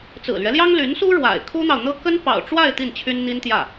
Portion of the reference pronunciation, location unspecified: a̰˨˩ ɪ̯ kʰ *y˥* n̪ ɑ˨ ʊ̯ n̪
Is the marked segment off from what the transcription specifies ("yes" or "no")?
yes